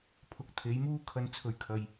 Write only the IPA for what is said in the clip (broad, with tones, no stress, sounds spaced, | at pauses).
pʰ ʊ˨˥ k̚ t̪ʰ e˨˥ j m uː˥ kʰ ɐ˧ n t͡sʰ ɵ˨˧ ɥ kʰ ɐ˨ j